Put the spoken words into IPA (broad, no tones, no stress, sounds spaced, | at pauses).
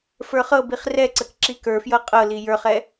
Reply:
f ə˞ χ ɤ b i χ r ɛ ǀ ə k ǁ i k ə˞ f j ɤ qʼ ɤ l i j ə˞ χ ɛ